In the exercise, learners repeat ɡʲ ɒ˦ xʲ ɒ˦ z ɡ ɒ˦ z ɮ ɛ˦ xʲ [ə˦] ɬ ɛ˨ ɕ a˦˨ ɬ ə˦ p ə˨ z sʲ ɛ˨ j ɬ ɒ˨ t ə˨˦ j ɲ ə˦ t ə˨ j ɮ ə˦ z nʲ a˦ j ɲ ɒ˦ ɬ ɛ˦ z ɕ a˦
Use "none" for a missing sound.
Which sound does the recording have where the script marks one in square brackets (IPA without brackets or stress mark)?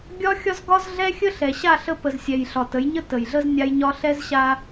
ə˦